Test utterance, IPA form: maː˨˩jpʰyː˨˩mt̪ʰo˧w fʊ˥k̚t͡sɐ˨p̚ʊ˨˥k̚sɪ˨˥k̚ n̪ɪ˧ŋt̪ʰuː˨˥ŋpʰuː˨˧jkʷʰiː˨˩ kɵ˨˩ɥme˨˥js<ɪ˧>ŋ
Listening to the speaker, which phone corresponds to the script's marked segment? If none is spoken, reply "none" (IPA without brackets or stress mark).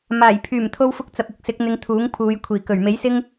ɪ˥